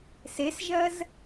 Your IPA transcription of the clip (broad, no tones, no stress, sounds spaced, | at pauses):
s e s ʒ ɜ z